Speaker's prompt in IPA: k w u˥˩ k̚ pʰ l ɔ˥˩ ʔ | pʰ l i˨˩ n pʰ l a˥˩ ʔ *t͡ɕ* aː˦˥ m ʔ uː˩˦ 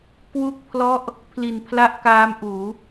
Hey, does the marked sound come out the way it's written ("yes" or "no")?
no